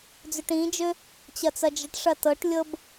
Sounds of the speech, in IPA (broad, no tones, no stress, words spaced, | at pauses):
d͡zøʈĩd͡ʒø | t͡ɕɐt͡sɐd͡ʒəʈʂɐ tɤʈlʲɤb